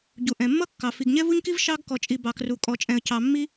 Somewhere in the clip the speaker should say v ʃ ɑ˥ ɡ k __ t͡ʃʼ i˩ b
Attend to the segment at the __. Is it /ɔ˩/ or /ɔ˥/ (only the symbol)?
ɔ˩